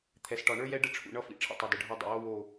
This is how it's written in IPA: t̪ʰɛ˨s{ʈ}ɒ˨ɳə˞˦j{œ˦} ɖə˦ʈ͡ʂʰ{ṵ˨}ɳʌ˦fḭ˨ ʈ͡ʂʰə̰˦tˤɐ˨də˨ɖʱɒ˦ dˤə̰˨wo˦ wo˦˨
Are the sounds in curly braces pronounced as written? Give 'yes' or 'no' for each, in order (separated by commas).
yes, no, yes